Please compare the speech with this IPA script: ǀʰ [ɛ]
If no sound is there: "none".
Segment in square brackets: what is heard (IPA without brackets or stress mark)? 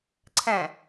ɛ̃